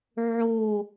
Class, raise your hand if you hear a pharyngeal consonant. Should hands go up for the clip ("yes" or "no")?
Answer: yes